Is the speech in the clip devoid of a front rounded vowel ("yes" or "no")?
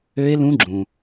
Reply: no